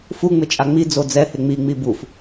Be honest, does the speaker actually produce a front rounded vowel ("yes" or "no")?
no